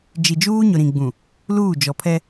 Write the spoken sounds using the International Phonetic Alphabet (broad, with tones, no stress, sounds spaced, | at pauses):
d͡ʒ i˨ d͡ʒ uː˦ ɲ ʊ˨ ɾ ĩ˨ ɡ͡b ũ˨ | l uː˦˨ d͡ʒ ɔ˨ pʰ ɛ˦